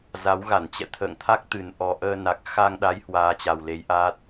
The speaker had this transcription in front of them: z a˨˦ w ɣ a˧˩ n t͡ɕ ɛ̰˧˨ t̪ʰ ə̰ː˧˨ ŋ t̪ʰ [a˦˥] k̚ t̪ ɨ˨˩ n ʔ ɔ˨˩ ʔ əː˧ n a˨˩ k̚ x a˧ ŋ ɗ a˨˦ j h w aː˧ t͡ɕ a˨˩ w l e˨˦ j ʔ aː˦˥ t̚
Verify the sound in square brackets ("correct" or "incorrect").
correct